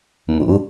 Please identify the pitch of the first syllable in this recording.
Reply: rising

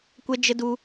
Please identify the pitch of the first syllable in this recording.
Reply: high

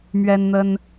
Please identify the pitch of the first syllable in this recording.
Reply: high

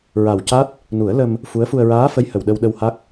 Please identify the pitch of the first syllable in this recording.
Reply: low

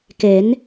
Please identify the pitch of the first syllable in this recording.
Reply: rising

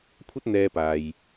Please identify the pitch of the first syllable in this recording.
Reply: high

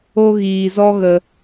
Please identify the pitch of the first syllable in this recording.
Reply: high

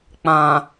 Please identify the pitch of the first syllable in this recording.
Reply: low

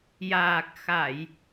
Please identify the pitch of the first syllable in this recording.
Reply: low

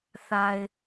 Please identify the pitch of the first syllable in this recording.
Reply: low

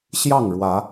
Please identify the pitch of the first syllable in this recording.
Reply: falling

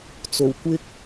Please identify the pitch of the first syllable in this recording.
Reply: low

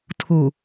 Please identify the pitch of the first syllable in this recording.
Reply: low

